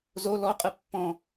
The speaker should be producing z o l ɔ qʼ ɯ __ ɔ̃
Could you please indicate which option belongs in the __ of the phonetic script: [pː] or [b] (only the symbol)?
pː